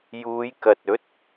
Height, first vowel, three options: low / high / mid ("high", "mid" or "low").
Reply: high